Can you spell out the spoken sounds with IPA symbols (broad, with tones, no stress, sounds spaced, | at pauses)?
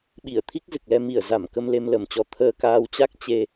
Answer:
ɓ i˧˩ ə̯ t̪ʰ i˦˥ k̚ z ɨ˨˩ k̚ l ɛ˧ m i˧˩ ə̯ z a˧˩ m k ə˧ m l e˧ m l ə˨˩ m t͡ɕ ɔ˧ t̪ʰ əː˧ k aː˧ w t͡ɕ a˦˥ k̚ t͡ɕ e˧